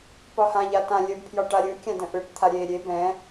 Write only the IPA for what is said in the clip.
pɒhã ʎatã lʲəbpʰjɒ ʈaɾʲɯkʲã də̃ʔɯʈt̪ʰa ɾʲe ɾʲe bɛ̃

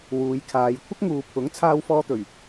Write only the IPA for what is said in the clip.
wuː˨˧jkʰaː˨˧j kʷʰɐ˥k̚ŋuː˨ pʰʊ˨˥ŋ t͡sʰaː˧wfɔː˧t̪ɵ˨˩ɥ

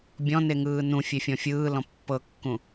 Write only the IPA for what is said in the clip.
bʲɔ̃neŋɯː nũfʲefʲɔ̃ fʲɯːlɔ̃ pːɤkːũ

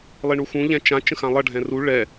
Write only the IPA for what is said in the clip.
lˠiɳuxũ ʎɛ̃t͡ʃã t͡ʃə̃xãlˠʌ ɖʱɛ̃ru ɭɛ

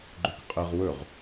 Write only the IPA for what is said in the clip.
ɡ͡ǃøkqʼɘʁ wɵʁ

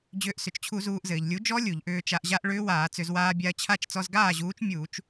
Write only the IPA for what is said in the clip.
d͡ʑʏː˨˥ʔsʏ˩t͡ʃt͡ɕʰu˧˩˧ zuː˧ʔzɘː˩ʎ lʲu˨˥d͡ʒɔ˦˥ lʲu˧˩˧ʎʔʏː˧t͡ʃa˧ʔʑa˦˥ʔ ɭʏː˦˥waː˧˩˧t͡sʏ˧˩˧z waː˧bʲa˧ɐ̯t͡ɕʰa˥˩t͡ʃ t͡sɔ˧zɡaː˥˩ʑuː˨˥t͡ʃ mʲuː˧˩˧t͡ʃ

